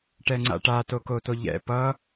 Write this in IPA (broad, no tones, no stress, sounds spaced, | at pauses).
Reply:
ʈ ɛ ŋ͡ǀ a̰ ʈ a t o k o t o ʎ ɛ̰ p ʌ